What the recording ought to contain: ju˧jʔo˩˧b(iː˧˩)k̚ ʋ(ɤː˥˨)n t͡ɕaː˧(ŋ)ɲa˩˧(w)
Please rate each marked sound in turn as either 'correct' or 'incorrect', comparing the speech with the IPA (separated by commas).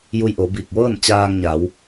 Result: correct, correct, correct, correct